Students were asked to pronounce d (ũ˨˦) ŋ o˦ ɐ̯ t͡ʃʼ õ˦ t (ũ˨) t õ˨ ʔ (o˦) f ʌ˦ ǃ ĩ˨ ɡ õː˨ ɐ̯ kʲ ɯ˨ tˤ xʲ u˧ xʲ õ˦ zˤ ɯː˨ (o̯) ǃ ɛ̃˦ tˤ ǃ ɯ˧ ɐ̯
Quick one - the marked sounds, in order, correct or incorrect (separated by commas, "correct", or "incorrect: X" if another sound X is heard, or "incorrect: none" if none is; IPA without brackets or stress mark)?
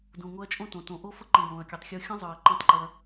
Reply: incorrect: ũ˨, incorrect: õ˨, correct, incorrect: ɐ̯